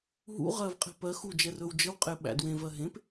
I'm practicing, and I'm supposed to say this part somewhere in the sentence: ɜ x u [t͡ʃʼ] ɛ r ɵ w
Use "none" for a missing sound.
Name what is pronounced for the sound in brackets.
d͡ʒ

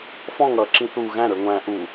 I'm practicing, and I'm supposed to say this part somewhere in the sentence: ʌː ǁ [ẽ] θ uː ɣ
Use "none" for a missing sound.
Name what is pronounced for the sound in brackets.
ĩ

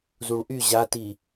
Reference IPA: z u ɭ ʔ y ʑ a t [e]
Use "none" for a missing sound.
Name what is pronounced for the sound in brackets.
i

